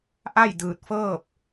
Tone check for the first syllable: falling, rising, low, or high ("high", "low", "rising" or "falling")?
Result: falling